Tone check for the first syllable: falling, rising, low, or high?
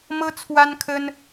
high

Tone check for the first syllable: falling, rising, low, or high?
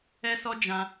high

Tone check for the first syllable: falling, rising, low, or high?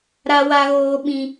high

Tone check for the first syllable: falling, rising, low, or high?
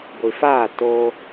low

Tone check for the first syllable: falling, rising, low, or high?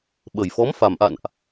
low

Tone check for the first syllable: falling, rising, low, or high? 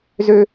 high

